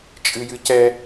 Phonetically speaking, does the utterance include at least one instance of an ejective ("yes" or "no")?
yes